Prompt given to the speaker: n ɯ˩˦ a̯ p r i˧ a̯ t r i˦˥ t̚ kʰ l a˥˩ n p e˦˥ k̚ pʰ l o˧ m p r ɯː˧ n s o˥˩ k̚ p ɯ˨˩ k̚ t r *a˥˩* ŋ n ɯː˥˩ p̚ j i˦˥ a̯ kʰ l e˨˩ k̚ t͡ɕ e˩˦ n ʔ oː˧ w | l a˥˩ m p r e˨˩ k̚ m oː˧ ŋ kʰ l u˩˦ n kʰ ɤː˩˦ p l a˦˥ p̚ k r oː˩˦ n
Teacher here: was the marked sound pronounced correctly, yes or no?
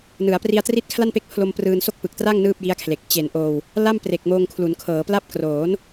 yes